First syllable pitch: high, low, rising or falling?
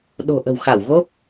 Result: low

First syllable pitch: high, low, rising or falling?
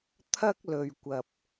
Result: high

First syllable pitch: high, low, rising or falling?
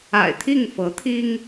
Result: low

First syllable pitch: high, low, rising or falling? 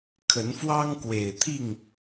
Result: rising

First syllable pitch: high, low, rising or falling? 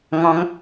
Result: rising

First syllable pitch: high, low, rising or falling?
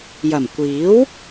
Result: low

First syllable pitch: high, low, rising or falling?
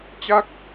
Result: falling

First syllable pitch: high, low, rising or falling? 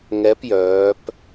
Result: rising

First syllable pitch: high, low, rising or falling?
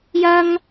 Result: high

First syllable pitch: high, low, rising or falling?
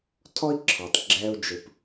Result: high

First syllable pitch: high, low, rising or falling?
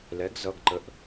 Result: rising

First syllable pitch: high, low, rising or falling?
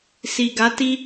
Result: low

